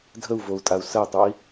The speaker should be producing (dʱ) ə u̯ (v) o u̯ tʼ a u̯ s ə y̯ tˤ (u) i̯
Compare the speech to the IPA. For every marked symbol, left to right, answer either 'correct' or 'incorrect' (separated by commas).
correct, correct, correct